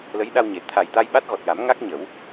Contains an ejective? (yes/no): no